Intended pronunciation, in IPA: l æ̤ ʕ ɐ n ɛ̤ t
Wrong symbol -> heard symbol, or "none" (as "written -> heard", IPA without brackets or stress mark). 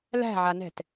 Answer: ɐ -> a